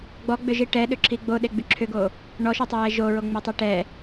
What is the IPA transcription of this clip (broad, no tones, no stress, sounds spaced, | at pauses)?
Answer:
ɡ͡b ɔ ɡ͡b ʏ ʒ i ʈ ɛ ɗ ʏ ǁʰ i ɡ͡b o ɗ e ɡ͡b y ǁʰ ʏ ɡ o | ɳ ɔ ʃ y tˤ ʏ j ɛ ʒ o ɹ o ŋ͡m e tˤ i ʈ ɛ